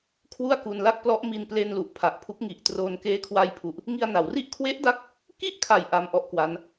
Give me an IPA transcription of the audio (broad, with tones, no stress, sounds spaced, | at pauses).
kʰ w u˥˩ a̯ k u˧ n l a˥˩ k̚ p l ɔ˦˥ ʔ m i˧ n p l e˧ n l u˨˩ ʔ pʰ a˨˩ ʔ pʰ u˦˥ k̚ ŋ i˨˩ ʔ t r oː˧ n k eː˦˥ kʰ w a˧ j pʰ u˨˩ ʔ | ŋ i˧ a̯ n a˩˦ w r i˥˩ ʔ kʰ w e˦˥ ʔ d a˦˥ k̚ | k i˥˩ ʔ kʰ a˨˩ j ʔ a˧ m ʔ ɔ˦˥ ʔ k w a˦˥ n